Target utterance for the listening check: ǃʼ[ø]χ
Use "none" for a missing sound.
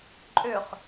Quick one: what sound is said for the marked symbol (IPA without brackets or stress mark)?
ø